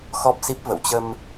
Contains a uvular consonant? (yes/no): no